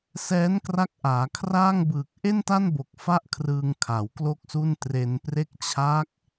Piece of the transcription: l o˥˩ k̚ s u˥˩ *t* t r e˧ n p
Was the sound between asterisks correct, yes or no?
no